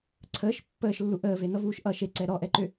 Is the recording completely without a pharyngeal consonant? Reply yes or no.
yes